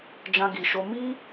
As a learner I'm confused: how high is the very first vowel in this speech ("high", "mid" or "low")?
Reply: low